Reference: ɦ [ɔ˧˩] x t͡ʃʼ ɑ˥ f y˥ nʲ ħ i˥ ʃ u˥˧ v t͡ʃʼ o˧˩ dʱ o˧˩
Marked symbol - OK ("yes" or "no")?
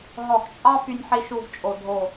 yes